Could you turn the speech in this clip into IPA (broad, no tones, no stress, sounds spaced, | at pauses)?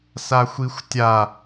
s a xʷ i xʷ tʲ a